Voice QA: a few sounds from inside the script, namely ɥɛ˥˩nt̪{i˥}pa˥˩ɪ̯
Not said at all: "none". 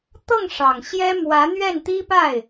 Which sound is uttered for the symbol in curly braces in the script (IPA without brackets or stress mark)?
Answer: i˥